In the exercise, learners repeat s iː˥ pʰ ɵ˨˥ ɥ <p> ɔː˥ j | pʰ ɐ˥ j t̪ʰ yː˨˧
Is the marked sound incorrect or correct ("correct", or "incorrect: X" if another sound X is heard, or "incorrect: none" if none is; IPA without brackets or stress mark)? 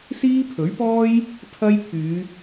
correct